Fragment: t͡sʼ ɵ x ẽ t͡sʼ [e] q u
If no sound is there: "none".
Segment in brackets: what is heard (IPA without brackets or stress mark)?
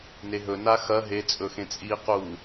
i